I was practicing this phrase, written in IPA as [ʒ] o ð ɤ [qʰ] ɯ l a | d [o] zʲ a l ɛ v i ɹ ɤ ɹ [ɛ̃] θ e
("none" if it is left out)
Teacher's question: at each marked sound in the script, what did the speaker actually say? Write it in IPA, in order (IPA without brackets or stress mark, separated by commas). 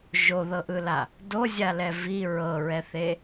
ʒ, ʔ, o, ɛ